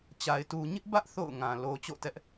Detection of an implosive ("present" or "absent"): absent